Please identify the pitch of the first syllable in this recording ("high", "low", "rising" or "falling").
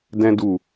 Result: high